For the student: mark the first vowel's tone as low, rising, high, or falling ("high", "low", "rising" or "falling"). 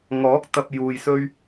rising